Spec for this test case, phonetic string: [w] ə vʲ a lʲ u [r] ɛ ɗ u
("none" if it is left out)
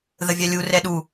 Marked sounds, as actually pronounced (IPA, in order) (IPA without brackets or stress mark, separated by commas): ð, r